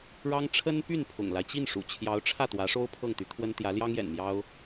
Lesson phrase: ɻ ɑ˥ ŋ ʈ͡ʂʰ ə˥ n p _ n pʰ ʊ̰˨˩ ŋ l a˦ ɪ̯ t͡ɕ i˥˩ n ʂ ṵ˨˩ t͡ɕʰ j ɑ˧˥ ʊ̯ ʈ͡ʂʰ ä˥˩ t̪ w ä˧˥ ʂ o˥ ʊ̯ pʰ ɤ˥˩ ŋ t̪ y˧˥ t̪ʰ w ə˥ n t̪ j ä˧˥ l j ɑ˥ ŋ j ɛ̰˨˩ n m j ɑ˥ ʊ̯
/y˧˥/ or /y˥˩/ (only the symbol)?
y˥˩